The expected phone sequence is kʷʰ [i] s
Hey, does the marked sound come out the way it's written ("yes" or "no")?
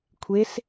no